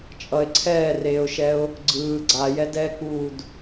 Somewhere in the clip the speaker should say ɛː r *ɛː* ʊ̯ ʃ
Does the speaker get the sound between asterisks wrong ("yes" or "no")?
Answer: yes